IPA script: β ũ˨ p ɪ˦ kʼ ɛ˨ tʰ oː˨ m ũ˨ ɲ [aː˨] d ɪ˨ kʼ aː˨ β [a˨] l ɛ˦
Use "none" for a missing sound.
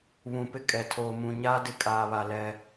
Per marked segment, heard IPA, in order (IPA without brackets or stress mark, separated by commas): aː˦, a˨